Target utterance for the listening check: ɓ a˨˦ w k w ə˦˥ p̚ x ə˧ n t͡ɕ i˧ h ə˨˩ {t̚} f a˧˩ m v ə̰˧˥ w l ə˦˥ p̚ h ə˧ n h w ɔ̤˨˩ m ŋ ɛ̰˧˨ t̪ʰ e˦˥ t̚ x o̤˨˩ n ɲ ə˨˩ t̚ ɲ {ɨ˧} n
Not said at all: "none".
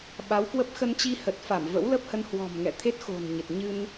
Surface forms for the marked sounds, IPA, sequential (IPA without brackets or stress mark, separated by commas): t̚, ɨ˧